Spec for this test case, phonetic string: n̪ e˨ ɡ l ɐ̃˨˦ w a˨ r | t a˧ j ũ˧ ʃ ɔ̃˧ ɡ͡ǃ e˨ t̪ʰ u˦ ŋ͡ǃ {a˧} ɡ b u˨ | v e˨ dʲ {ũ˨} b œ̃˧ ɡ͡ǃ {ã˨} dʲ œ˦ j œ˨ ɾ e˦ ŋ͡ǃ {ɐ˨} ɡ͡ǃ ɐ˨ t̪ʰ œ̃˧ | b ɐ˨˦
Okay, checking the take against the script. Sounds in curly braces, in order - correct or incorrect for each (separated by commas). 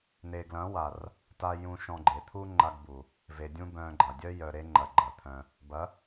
correct, incorrect, incorrect, correct